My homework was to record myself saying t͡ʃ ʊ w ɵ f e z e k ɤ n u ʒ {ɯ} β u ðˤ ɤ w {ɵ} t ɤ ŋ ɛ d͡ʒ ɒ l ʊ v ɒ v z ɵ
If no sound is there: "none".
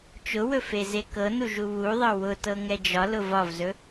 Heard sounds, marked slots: u, ʊ

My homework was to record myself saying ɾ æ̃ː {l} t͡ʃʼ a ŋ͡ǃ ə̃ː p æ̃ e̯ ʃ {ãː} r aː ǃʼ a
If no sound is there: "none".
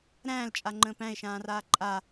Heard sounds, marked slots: l, ãː

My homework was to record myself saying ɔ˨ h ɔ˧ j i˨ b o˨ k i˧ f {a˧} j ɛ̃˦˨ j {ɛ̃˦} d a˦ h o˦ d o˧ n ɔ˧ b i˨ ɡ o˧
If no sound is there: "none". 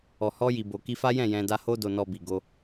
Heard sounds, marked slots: a˦, ɛ̃˧

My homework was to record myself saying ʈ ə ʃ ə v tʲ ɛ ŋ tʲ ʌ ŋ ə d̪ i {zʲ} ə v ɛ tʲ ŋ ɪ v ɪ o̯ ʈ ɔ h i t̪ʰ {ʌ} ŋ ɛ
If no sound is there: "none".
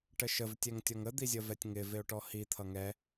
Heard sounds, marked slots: zʲ, ʌ

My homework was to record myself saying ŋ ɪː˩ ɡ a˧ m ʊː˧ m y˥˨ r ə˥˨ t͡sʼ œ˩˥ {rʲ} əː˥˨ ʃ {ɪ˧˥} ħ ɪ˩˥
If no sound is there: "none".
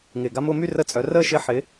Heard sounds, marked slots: r, ɪ˧˥

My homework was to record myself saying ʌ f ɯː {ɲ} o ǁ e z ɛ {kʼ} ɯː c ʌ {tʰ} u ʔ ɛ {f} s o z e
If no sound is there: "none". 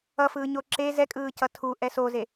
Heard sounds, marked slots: ɲ, kʼ, tʰ, none

